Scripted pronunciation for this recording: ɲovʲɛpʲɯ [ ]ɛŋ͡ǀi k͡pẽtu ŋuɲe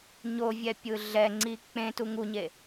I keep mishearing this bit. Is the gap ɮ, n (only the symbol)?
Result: ɮ